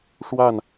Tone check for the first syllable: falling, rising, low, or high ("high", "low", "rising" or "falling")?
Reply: falling